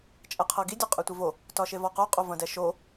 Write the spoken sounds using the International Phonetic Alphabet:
t͡ʃʼ ɛ qʰ ɤ ɡ i dʲ o qʼ ɛ tʷ e v o | t ɒ ʃ e v ɒ q o qʼ o v ɐ̃ d ɛ ʃ o

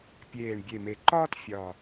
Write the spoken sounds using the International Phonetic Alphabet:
pʲ eː˨˩ ɳ bʲ e˨˩ m e˨˩ ǃ ɒː˥ t fʲ ɒ˨˩

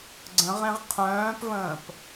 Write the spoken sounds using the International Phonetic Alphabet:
ɡ͡ǀ ə̃ ʁ ẽ ʁ qʰ œ̃ː p v ə̃ː p

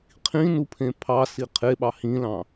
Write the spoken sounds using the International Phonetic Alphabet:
qʰ ĩ n u pʰ ẽ pʰ ɑ s i qʰ e ɓ ɑ h ĩ l ɑ̃

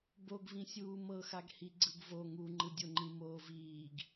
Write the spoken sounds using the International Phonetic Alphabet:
b o ɡ v ĩ sʲ uː m ɤ x a ɡ h i ɡ͡ǀ ɯ ɡ v o ŋ u ŋ͡ǃ ɯ dʲ o ŋ͡ǃ ĩ m oː v iː ɡ

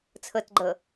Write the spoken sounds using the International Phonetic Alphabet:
t͡sʰ ɤ t ɡ͡ǃ ɤ

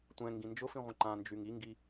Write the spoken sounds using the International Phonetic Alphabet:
tʷ ɛ̃ ŋ ɡ ĩ n d͡ʒ ʊ f ĩ ʁʷ ə̃ ǃ ã n d͡ʒ y ŋ i ŋ ɡ i

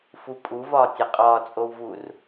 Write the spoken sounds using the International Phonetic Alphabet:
f u pʼ u v ɒː tʲ e qʼ ɒː t͡sʼ o w v uː r

